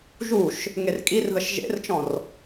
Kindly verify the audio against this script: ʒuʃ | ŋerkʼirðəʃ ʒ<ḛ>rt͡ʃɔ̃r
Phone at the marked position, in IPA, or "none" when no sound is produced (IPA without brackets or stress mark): ḛ